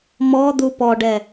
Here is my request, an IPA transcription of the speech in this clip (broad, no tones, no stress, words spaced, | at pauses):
mɔd̪u pɔɖɛ